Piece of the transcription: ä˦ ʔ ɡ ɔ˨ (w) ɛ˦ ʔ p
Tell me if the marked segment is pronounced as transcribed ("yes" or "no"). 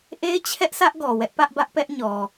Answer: yes